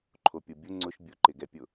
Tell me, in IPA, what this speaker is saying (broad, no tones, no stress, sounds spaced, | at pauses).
ǃʰ o pʲ o bʲ ʊ ŋ͡ǀ ʊ ʃ bʲ ʊ ǃ ɪ ɡ ɛ pʲ ʊ